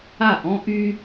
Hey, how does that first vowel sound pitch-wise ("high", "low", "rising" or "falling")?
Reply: falling